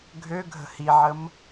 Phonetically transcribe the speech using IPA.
ɡʱøɡʱə̤ hiʕəm

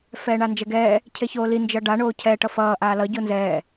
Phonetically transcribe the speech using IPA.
fɛːɳand͡ʒɛɡɛː | cʰeçoːli nd͡ʒʌɖa ɳoːcʰɛ ʈʌfʌː ʔaːlʌ ɟonzɛː

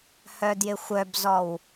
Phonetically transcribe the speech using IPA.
hœdjɪxʷœbzɔw

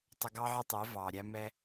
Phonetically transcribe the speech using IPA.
tˤə˧ɡɑ˦ʕə˦tˤɛ˨˦ vɑ˨ ɾʲæ˦mɛ˦

